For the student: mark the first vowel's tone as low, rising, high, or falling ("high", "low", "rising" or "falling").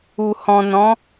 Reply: low